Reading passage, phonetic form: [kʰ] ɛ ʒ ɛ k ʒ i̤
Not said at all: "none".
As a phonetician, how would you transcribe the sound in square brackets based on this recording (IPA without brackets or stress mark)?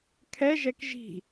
kʰ